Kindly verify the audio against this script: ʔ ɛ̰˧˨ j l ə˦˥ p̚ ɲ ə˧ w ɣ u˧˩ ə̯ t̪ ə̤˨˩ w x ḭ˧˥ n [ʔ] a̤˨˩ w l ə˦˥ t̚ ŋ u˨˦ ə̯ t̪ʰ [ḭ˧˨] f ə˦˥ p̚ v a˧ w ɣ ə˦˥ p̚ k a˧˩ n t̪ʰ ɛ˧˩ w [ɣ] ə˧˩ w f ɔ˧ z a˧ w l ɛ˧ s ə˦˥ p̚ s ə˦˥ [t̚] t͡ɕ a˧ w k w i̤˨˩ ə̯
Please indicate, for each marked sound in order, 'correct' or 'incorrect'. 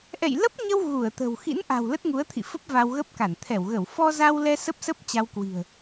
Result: correct, correct, correct, incorrect

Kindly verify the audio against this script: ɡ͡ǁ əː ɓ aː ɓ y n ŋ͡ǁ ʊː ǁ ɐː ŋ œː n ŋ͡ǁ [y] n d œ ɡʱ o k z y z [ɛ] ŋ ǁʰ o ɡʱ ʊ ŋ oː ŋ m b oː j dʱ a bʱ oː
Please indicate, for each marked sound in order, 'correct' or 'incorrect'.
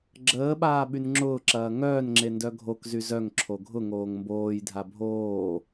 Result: incorrect, incorrect

